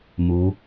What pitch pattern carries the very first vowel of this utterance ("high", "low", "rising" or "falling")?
rising